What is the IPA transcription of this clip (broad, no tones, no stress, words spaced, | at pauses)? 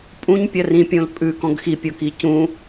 pʼũɲpʲɐ rĩpʲõl pʼʉkɔ̃ɡ xipʲoki cũ